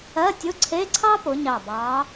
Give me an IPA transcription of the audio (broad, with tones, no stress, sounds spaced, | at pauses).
ɜ˧˥˧ tʲ ʊ˧˥˧ ǀʰ e˧˥˧ ǀʰ ɑ˥ p ʊ˨˥ ɲ ɑ˧˩ b ɑ˨˥